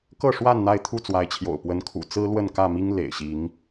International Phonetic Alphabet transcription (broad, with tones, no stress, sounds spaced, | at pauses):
k ɤ˥˨ ʂ w a˥˨ n n̪ a˥˨ ɪ̯ t̪ʰ u˥˨ t͡s w a˨˦ ɪ̯ t͡ɕʰ j o̰˨˩ ʊ̯ p w ə˨˦ n kʰ ṵ˨˩ t͡s ɹ̩˦ l w ə˥˨ n k ä˥˨ m i˦ ŋ l ḛ˨˩ ɪ̯ ɕ i˨˦ ŋ